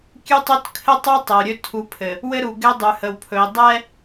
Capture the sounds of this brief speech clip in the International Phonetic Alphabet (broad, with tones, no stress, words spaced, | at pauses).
kʲʉ˦tˤɵ˦t kʰɘ˦tˤu˦ tˤɛ˨u̯ɾʲɵ˦ tʰu˨˦pʰɘ˨ | wɘ˦ ɾu˨ ɡɛ˦dˤʉ˨hə˨wpʰɵ˨i̯ dˤɛ˦